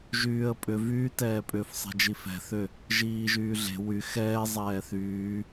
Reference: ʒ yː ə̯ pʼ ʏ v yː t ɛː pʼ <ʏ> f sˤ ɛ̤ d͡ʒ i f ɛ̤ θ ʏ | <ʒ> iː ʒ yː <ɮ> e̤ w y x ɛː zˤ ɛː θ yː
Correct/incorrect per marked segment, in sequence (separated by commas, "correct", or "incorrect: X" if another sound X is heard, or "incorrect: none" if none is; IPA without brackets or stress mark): correct, correct, correct